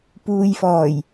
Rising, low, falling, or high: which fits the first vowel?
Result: low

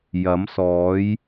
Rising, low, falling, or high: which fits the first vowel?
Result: rising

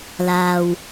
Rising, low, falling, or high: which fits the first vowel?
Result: low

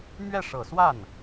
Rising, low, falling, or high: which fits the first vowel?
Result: falling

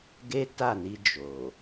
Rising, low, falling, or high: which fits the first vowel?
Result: high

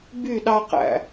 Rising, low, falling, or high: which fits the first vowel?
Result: falling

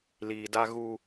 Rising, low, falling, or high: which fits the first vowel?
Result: low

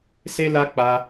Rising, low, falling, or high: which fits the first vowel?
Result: high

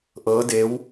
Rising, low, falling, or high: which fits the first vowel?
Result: rising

